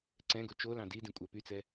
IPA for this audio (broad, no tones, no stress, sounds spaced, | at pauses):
ǀ ɛ̃ ɡ o t͡ʃ o l ɑ̃ d i d ĩ kʷʼ æ p y t͡s ɛ